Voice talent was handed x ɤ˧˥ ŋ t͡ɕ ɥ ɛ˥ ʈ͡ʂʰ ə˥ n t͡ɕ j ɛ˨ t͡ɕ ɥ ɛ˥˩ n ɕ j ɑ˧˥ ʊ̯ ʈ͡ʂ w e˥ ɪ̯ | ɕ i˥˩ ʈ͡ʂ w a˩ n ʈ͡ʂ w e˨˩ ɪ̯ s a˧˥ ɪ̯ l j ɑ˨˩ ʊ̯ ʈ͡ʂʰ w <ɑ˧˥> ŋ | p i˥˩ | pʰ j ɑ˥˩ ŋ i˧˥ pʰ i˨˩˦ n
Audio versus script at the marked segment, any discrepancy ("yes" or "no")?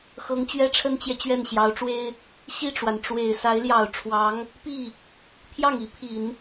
no